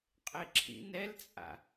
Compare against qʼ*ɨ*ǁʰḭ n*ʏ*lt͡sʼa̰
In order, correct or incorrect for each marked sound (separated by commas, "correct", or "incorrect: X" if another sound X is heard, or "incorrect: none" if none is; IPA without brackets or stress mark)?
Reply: incorrect: e, incorrect: ɛ